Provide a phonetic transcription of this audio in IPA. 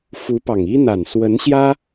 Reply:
f u˧˥ p ɑ˨˩ ŋ i˥ n̪ a˨˩ n s w ə˧˥ n ɕ j ä˥

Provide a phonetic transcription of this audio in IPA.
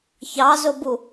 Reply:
ç ɑ z ʊ b u

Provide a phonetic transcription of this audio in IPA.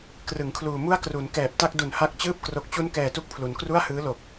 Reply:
k r ɯ˩˦ ŋ kʰ l uː˨˩ m u˥˩ a̯ k r u˩˦ n k ɛː˨˩ p̚ t a˥˩ k̚ d u˨˩ n h a˦˥ k̚ t͡ɕ ɯː˥˩ p̚ k r o˨˩ k̚ t͡ɕ u˦˥ n k ɛː˨˩ t u˦˥ k̚ pʰ l u˩˦ n k r u˥˩ a̯ h ɯː˦˥ l o˨˩ k̚

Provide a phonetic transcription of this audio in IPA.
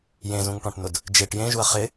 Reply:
j ẽ z ũ ŋ ʈ ɔ̃ ʈ n ʊ d | d͡ʒ e ʈ j ẽ ʒ u ɐ̯ χ ɪ

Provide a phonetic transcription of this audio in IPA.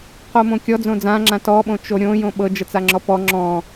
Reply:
q o m õ kʲ ɔ d͡z õ d͡z ã ŋ͡ǁ ã t ɔ ɓ õ t͡ʃ o ɾʲ õ j õ ɓ ɤ d͡ʒ ə t͡s a ŋ͡ǁ ɔ p ɔ ŋ͡ǁ ɔ̃

